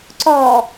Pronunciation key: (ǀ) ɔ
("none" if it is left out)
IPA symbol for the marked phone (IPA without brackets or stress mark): ǀ